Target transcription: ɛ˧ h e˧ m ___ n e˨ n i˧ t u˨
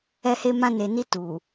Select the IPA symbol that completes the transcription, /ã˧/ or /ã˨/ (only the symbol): ã˧